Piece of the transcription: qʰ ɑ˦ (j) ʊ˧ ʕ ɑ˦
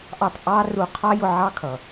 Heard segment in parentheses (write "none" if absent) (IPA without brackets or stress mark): j